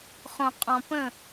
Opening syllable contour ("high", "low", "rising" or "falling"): low